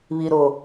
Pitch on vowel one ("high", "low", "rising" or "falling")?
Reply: low